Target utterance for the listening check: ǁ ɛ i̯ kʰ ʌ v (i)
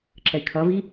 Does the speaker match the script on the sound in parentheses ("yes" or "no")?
yes